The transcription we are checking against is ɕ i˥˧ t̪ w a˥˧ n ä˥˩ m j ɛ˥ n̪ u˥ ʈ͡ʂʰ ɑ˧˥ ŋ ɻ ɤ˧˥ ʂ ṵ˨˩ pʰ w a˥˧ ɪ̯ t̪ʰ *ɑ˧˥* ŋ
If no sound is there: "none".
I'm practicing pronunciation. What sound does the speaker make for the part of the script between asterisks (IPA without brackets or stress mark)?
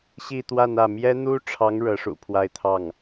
ɑ˥˩